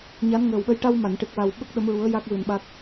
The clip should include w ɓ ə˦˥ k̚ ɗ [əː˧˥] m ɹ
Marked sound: incorrect: ə˧˥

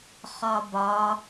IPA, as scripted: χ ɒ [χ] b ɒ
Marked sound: incorrect: none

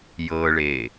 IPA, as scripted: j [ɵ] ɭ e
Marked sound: incorrect: ɤ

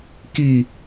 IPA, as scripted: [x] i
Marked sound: incorrect: k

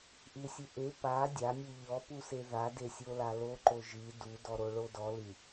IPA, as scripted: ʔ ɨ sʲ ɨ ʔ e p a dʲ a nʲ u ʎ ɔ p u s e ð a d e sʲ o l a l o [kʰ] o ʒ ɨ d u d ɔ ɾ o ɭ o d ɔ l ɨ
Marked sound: incorrect: ǃ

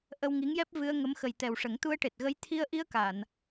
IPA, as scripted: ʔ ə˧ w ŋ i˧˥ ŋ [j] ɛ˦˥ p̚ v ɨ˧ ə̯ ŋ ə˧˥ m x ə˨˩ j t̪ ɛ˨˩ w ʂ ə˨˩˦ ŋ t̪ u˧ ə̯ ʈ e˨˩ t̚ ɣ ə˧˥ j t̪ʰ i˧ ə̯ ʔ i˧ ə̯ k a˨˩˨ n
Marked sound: correct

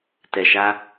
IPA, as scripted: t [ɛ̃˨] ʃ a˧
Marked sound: incorrect: ɛ˨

